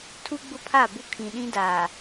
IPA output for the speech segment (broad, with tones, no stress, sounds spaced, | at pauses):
tʰ u˦ ɡ͡b ʊ˦ pʰ a˦˨ b ʊ˦ kʰ ĩ˨ ɗ ĩ˦ d aː˨